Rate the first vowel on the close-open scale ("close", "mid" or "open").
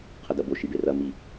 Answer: open